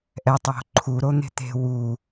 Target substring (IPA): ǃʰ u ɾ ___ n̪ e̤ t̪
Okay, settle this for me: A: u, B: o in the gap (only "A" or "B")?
B